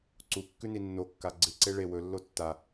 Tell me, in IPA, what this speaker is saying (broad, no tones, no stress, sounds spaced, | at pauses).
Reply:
ǀ u kː ʉ n i nː o kː a ɡ͡ǀ ɨ ǀ e ɭ e w ɵ lː o tː a